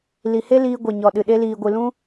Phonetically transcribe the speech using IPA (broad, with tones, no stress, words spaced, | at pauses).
li˨he˦ liː˧ɡʷe˨ɲɔ˨ɗɨ˨ ɗe˧liː˨ɡʷɨ˨lũ˦